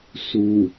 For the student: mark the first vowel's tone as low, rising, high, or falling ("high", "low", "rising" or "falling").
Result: low